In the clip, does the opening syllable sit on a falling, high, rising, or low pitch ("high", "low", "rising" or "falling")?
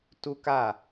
high